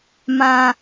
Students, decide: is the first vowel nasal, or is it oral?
nasal